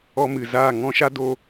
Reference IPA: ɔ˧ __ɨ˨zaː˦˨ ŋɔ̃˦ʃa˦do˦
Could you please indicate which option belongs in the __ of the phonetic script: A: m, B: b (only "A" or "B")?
A